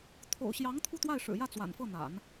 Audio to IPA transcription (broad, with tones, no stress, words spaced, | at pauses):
t̪ʰo̰˨˩ʊ̯ɕjɑ˧˥ŋ t̪ʰu˥˧t̪wa˥˩ɪ̯ʂɻ̩˨˩jä˥˩ t͡swa̰˨˩nfɤ˥˩n̪a̰˨˩˦n